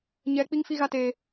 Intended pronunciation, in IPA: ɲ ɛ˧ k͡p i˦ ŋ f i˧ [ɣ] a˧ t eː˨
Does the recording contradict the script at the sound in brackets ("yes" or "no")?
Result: no